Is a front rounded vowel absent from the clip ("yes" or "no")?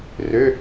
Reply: no